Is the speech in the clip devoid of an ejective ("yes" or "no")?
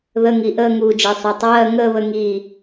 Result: yes